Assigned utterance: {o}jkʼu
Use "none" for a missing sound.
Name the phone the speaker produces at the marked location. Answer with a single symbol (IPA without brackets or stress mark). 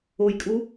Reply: o